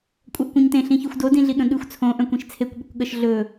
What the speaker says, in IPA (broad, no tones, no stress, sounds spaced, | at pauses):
kʷʼ œ ʔ kʷ œ̃ ɲ t ẽ ɬ ĩ ç ʉ xʷ d o d ĩ ɮ i ɠ ə̃ ɠ ʉ xʷ t͡sʰ õ ʔ œ̃ kʷ ĩ ʃ t͡sʰ e kʷ ɓ ə kʷ ɠ ə ʃ ɮ ɵ